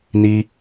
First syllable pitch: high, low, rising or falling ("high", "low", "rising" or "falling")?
high